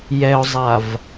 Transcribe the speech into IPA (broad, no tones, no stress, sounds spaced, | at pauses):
j ɛ ʊ̯ zˤ a v